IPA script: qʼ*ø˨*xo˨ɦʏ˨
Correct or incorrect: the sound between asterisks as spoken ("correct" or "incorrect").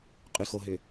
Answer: incorrect